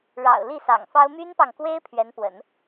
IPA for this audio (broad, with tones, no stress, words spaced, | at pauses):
ɻɑ̰˨˩ʊ̯ li˥˩sɑ̰˨˩ŋfɑ˥ʊ̯ my˥npɑ˨ŋkwe˥ɪ̯ pʰɥɛ˧˥npwə̰˨˩˦n